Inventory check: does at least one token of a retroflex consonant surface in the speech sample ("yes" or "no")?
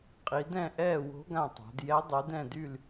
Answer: no